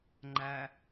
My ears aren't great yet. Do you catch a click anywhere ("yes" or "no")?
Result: yes